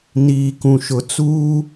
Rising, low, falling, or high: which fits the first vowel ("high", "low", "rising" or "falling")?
low